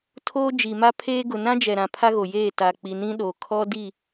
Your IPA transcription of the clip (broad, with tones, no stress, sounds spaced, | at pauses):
tʰ oː˦ d͡ʒ i˨ m a˦ pʰ eː˦ ɡ ʊ˨ n ã˦ d͡ʒ ɛ˨ ɾ ã˨ pʰ a˦ ɣ o˨ j eː˦˨ t a˨ k͡p i˨ n ĩ˦ ɗ oː˨ kʰ ɔ˦ d i˦˨